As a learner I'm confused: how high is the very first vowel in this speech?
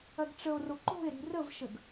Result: low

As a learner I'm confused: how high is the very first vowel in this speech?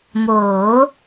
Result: mid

